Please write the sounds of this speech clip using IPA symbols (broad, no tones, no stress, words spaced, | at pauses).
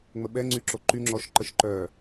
ŋ͡məɓɛŋ͡ǀyǁo ǃyŋ͡ǁɔʃ ǃəʃǃœ